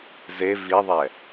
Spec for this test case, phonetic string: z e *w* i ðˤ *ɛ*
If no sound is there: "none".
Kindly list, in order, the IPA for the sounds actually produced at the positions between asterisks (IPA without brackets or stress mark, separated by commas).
v, ɛ